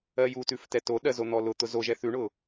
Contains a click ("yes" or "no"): no